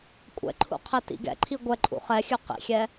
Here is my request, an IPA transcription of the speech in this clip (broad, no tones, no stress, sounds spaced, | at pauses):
kʷʼ ɛ̰ ǃʰ ṵ qʰ ɛ t ḭ ɡ ɛ̰ ǃʰ i ɡʷ ɛ ǃʼ ṵ χ ɛ xʲ ʉ q ḭ xʲ ɛ